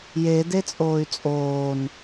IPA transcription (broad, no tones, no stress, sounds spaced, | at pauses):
j e d e t͡sʼ oː y̯ t͡sʼ oː n